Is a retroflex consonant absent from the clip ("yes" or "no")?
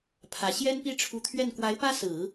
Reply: no